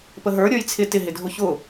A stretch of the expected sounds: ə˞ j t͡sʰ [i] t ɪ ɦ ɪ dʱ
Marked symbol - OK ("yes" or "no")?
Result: no